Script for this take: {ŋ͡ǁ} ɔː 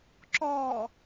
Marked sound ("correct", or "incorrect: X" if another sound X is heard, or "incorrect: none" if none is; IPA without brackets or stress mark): incorrect: ǁ